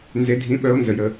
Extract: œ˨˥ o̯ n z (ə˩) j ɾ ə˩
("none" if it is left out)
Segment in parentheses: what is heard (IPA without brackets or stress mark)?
ə˩